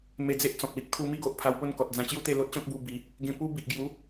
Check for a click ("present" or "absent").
absent